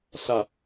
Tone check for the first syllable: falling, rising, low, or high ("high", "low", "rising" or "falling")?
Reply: low